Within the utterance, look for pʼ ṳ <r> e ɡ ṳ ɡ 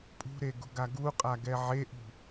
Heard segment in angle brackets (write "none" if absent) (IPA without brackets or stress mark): ɾ